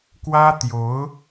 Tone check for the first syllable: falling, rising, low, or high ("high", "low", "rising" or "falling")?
high